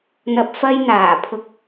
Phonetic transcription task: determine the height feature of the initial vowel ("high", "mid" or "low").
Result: low